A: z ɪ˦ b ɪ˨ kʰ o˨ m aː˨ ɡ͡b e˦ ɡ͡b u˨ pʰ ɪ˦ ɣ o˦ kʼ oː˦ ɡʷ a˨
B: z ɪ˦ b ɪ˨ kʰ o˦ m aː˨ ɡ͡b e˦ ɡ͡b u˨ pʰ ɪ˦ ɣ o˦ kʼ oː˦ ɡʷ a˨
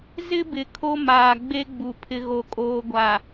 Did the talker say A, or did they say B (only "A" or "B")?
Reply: B